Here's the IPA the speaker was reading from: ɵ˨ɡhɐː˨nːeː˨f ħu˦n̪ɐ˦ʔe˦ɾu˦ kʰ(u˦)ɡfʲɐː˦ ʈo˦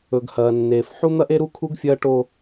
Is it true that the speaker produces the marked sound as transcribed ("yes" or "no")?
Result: yes